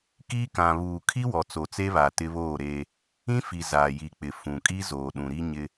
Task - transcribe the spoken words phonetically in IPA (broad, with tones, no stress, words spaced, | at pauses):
kiː˦kã˨ βuː˨kʰi˦wɔ˨ t͡so˨t͡se˦βaː˨ tɪ˦βoː˦˨ɾeː˦ | ĩ˦fi˨ zaː˨ji˨k͡pɪ˨ fũ˨ kʼi˦zoː˨ɗũ˨ɾi˦ ɲɪ˦